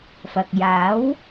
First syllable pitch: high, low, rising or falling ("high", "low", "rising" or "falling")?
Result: low